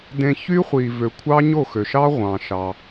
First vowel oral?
no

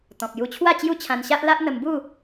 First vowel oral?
no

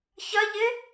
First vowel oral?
yes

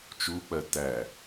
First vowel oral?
yes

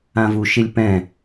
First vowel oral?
no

